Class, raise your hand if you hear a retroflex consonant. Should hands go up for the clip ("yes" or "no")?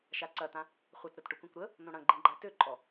yes